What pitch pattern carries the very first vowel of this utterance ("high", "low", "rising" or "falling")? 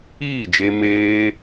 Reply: falling